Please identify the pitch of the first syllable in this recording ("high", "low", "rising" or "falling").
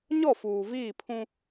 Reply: falling